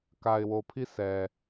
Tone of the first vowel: low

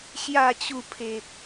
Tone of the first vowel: low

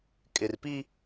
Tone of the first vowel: low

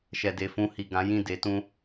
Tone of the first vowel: low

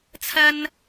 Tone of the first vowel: high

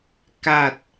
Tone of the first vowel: low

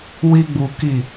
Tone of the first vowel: high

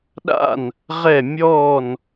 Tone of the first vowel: falling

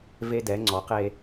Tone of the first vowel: high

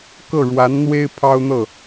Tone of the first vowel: falling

